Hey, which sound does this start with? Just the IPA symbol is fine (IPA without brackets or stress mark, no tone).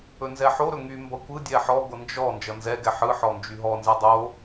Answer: ɵ